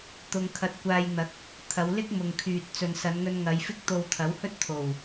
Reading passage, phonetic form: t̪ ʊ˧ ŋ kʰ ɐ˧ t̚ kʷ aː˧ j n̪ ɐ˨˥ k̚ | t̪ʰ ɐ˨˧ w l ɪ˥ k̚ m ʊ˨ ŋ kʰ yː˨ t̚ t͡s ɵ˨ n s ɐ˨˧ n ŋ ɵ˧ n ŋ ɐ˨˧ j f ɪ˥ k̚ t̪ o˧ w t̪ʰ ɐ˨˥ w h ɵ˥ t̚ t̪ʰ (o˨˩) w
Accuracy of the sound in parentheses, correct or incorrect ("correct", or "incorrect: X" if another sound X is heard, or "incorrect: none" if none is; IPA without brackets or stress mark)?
correct